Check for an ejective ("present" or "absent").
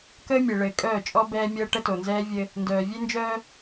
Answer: present